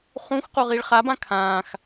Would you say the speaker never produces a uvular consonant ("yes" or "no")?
no